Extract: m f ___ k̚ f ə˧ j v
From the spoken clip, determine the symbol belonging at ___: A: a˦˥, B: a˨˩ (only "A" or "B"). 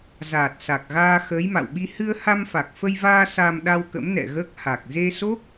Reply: B